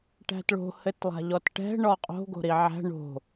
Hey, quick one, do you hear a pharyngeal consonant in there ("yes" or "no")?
yes